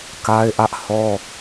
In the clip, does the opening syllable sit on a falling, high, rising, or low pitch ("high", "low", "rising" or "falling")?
high